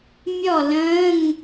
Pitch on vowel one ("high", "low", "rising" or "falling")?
falling